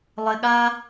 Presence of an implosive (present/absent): present